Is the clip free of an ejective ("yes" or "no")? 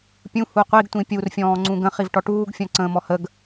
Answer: yes